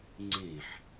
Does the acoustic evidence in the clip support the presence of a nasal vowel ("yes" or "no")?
yes